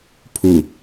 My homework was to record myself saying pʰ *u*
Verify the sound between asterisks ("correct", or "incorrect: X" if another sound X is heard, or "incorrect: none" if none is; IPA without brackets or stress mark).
correct